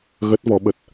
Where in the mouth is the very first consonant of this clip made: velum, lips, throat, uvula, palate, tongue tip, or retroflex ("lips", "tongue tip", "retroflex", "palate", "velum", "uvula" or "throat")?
velum